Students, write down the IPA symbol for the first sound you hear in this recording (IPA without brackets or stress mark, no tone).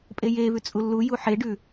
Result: pʼ